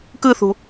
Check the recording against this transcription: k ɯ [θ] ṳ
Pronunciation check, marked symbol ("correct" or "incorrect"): correct